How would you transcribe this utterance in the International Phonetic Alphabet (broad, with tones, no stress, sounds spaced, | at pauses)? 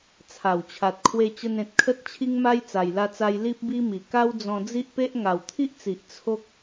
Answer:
t͡sʰ a˨˩ w t͡ɕʰ a˨ t̚ kʰ w e˧ t͡ɕ ə˧ n ẽ˨ t̚ kʰ ə˦ t̚ t͡ɕʰ i˦ ŋ m a˦ j t͡s a˨˩ j l a˧ t͡s a˧ j l i˦ p̚ b i˦ m i˨˩ k a˦ w d͡z ɔ̃˧ d͡z i˦ ʔ p e˦ ʔ ŋ a˨˩ w t̪ʰ i˦ ʔ t͡s i˨ ʔ t͡sʰ o˦ k̚